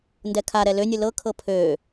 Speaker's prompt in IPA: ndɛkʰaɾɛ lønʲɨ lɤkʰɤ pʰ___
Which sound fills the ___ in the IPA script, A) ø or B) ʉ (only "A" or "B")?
A